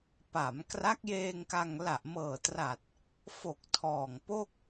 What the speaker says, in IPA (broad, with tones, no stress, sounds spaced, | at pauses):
p a˩˦ m k r a˦˥ k̚ j eː˧ ŋ k a˧ ŋ l a˨˩ ʔ m ɤː˨˩ t r a˨˩ t̚ | f o˨˩ k̚ tʰ ɔː˨˩ ŋ p o˥˩ k̚